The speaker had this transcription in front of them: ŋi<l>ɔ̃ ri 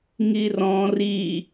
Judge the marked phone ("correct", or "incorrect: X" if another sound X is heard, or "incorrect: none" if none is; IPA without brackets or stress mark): incorrect: r